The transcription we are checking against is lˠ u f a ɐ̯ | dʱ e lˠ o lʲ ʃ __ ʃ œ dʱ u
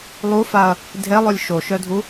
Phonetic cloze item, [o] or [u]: o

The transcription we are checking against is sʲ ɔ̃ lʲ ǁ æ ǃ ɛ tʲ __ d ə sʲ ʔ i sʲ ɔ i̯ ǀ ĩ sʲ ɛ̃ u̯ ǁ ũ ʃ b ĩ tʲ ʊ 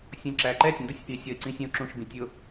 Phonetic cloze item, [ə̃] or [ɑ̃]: ə̃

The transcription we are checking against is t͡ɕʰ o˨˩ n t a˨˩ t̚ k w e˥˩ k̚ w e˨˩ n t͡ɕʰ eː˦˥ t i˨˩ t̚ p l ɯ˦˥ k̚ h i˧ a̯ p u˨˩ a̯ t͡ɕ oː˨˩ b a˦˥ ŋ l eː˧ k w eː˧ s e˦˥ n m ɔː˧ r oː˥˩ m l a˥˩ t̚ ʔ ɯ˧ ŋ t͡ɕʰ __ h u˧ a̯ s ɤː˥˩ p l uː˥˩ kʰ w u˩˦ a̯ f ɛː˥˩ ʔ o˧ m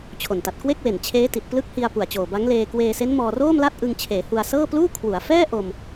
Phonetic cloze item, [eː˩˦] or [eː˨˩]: eː˩˦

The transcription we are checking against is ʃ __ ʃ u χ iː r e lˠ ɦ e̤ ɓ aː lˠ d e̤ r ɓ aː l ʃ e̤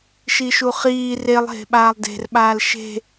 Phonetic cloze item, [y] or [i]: i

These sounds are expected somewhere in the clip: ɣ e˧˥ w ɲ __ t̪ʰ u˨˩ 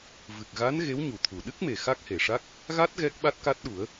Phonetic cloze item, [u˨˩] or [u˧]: u˨˩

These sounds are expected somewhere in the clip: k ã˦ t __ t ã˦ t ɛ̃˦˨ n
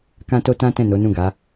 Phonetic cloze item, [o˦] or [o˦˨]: o˦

